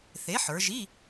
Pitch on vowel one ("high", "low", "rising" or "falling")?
rising